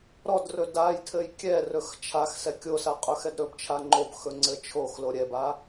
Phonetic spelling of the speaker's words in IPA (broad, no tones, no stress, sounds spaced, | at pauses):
ɾ ɔ d r ɵ d a j tʰ ɘ j kʲ ɛ r ɵ x t͡ʃʰ a x s ɛ kʲ o s a qʼ ɵ x ɛ d ɾ ɵ b t͡ʃʰ a ŋ͡ǃ o b x ɵ ŋ͡ǀ ɘ t͡ʃʰ o x l o ɾʲ ɛ b a